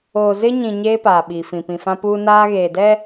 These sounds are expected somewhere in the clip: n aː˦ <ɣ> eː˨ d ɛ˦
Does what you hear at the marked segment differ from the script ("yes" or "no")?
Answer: no